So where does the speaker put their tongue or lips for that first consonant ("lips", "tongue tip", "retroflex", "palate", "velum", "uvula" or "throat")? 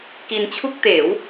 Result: velum